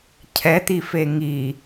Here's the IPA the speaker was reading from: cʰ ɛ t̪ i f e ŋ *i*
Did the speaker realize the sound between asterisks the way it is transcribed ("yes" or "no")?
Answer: yes